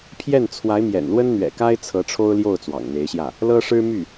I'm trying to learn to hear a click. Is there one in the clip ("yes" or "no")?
no